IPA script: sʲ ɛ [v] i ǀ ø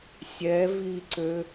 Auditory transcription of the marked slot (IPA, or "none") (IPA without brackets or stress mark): v